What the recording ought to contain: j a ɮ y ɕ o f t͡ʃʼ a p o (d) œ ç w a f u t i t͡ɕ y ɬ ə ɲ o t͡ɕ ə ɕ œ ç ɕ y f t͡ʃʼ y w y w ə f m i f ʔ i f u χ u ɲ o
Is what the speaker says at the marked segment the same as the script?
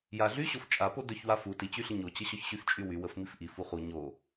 yes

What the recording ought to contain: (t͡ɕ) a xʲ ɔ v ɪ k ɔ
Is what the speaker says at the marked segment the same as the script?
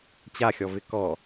yes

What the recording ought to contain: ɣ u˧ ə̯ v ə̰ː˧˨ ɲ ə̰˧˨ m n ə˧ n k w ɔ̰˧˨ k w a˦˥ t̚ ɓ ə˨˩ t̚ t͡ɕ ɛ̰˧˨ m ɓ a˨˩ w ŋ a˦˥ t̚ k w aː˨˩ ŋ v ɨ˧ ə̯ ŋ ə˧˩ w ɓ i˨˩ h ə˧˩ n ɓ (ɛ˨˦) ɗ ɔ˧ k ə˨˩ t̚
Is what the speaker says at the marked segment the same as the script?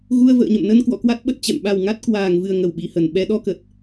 yes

